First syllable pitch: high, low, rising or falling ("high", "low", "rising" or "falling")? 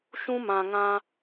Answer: high